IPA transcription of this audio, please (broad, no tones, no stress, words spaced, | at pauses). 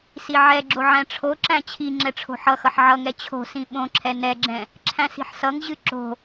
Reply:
siʕɛɡ͡ǁo ʕæ̃ʈ͡ʂʰoǁæ̃ t͡ɕʰi ŋ͡ǁɛʈ͡ʂʰo̤ħʌxʌħ ʕʌŋɛ t͡ɕʰo̤sĩ ɓõǁʰɛ nɛɡ͡ǁɛ̃ | ǁʰæ̃si̤ħsʌŋʑɨ ǁo̤